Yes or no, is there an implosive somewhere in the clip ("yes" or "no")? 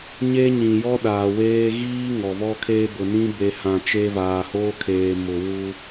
yes